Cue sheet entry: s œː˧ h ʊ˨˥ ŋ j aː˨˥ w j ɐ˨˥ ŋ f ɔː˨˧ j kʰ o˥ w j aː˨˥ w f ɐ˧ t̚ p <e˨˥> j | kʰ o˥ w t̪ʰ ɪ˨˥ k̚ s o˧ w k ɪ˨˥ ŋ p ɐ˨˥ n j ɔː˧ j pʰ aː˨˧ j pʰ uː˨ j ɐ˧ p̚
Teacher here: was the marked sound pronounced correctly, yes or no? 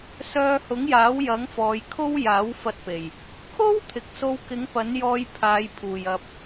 no